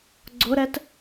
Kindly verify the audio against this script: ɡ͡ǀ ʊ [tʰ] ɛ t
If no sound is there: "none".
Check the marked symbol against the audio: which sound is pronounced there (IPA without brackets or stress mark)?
ɾ